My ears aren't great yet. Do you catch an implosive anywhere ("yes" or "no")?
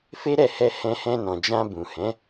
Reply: no